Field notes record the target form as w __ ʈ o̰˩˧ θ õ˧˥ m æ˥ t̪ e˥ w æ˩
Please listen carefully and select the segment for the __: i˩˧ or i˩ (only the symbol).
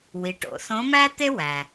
i˩˧